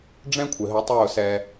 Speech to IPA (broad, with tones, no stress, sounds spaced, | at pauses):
ɖ͡ʐ ɛ̃˦ kʷʰ ɪ˨ ɦ ə˨˦ tˤ ʊː˦˨ s ɛ˧